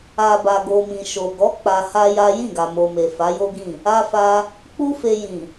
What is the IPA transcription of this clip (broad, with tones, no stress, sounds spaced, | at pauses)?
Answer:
a˨ b a˨ ɡ o˨ m ĩ˨ ʃ o˨ ɡ ɔ˨˦ k͡p a˧ h a˦ j a˦ j ĩ˦˨ ɡ a˨ m o˨ m e˨ f a˨˦ j o˦ ɡ ĩ˦˨ | a˦ f a˧ | k͡p u˦ f e˧ j ĩ˨